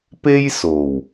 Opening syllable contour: high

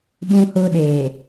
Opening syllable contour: high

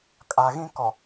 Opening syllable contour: low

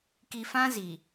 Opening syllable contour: low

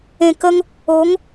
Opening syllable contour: low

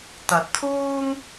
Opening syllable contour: rising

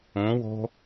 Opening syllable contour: rising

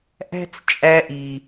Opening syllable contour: high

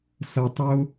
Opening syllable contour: low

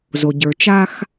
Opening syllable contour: low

